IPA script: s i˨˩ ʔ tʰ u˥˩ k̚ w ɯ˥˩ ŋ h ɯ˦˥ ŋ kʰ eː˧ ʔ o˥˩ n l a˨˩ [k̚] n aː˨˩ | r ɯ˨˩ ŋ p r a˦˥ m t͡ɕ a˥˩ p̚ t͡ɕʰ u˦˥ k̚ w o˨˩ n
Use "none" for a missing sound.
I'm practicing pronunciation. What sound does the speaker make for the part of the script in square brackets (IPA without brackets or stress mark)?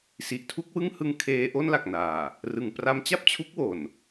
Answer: k̚